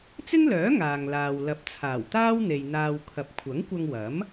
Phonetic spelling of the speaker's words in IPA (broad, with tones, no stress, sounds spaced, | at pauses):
t͡s ɪ˥ ŋ l œː˨˥ ŋ aː˨ ŋ l aː˨ w l ɐ˨ p̚ t͡sʰ aː˨˩ w t̪ aː˥ w n̪ e˨ j n̪ aː˧ w kʰ ɐ˨ p̚ kʷʰ ɐ˨˥ ŋ kʷ ɐ˧ ŋ w ɐ˨˥ m